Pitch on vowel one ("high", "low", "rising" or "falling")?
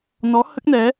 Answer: rising